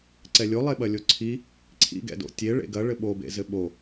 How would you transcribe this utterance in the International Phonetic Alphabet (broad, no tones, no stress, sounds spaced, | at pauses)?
ǀ ɛ lʲ o lˠ e ɓ ɐ lʲ o ǀʰ i | ǀʰ ḭ ɡ ɛ̰ d o̰ tʲ e ɭ ḛ ɡ ɐ ɭ ɘ ɓ o b ḛ z ɘ ɓ o